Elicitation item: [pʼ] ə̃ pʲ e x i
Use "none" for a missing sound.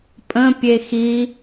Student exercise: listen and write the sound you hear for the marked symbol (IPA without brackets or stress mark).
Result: pʼ